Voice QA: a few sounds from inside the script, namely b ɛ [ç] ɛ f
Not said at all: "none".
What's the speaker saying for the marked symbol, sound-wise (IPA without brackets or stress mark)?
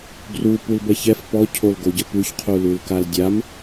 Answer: ç